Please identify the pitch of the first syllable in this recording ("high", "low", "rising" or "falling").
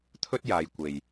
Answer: high